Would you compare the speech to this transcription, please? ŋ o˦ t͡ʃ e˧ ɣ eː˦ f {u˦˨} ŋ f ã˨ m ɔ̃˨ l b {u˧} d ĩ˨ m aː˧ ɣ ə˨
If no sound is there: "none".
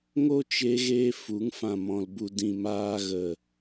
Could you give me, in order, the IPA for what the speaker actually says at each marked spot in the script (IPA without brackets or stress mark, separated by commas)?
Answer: u˨˦, u˨